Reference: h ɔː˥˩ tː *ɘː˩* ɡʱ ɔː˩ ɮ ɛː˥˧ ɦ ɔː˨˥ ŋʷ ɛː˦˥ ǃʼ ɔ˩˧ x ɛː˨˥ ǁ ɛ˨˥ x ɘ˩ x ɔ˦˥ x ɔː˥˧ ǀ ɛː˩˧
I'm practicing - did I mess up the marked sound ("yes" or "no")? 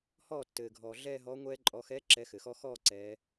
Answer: no